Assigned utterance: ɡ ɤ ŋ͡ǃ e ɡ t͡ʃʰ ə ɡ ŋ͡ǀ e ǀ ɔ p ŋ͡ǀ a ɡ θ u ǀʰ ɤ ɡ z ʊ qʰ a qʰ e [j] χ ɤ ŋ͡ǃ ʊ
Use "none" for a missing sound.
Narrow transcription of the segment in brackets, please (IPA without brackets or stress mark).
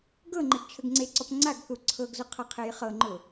j